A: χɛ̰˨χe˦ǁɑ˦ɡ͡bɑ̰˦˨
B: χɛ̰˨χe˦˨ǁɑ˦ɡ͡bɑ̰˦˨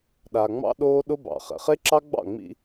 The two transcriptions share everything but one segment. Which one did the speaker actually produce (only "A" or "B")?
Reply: A